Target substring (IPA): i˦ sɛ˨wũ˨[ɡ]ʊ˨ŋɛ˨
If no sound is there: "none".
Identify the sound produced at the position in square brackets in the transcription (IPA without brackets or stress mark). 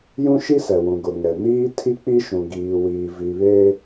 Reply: ɡ